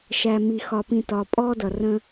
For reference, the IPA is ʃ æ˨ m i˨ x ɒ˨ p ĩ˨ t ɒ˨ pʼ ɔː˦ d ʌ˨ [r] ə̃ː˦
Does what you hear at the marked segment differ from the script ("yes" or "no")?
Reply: no